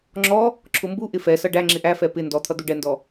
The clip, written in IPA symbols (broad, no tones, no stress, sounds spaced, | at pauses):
ŋ͡ǁ ɔ | ǁʰ ʊ m b u ʔ ɪ f ɛ s ʌ ɖ æ ŋ͡ǁ ɪ ʔ æ f ɛ p ɪ n d ɔ t̪ʰ ʌ d̪ u ɖ ɛ n d ɔ